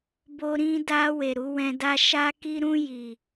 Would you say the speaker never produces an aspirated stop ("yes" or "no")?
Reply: yes